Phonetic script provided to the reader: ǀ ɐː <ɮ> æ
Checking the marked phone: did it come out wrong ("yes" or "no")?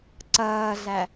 no